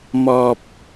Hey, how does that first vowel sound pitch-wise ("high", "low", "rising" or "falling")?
low